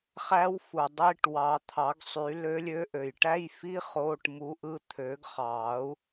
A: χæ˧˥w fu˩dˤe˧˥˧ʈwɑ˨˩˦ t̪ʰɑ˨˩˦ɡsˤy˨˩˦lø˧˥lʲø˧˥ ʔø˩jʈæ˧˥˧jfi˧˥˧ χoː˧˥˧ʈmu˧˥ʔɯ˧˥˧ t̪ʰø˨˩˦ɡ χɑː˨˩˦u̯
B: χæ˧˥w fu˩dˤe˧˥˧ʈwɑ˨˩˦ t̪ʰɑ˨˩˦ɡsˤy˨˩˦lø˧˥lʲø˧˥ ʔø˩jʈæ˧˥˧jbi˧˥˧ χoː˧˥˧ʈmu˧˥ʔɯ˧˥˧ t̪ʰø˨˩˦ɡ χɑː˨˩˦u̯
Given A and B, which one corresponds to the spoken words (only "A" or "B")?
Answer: A